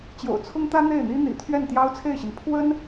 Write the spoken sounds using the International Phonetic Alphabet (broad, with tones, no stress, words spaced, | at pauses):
t͡ɕjo̰˨˩ʊ̯t͡sʰʊ˥ŋt̪ä˥ n̪e˥˩ɪ̯n̪i˥n̪ḭ˨˩ t̪ʰɥɛ˥˩nt̪jɑ˥ʊ̯t͡sʰe˥˩ɪ̯ɕi˩n pʰwə˥n